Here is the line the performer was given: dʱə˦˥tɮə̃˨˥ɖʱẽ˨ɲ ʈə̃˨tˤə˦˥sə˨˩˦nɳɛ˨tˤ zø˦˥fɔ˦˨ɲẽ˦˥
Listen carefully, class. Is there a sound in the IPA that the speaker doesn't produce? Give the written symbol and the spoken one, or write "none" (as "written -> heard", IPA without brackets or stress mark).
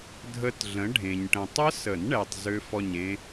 none